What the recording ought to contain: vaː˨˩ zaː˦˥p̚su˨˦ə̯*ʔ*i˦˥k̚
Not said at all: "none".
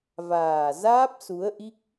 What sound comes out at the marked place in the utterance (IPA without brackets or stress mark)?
ʔ